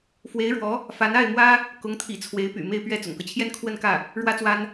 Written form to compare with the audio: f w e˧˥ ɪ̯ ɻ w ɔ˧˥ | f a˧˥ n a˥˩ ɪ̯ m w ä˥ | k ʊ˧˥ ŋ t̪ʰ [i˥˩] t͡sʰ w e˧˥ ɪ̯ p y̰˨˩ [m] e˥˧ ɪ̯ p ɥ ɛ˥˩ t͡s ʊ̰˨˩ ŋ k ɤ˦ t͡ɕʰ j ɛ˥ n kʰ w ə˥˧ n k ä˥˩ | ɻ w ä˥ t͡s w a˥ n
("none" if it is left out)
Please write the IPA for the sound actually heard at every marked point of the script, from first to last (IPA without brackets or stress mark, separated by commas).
ḭ˨˩, m